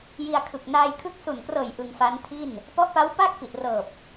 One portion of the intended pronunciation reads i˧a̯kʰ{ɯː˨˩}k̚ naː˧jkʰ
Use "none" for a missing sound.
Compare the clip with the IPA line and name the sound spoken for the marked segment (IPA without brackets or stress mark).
ɯ˨˩